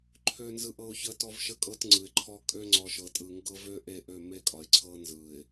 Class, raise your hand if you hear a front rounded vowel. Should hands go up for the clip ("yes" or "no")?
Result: yes